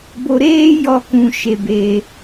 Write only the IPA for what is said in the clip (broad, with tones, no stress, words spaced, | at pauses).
bo˧ ɾeː˦ jɔ˧kũ˨ ʃe˨beː˨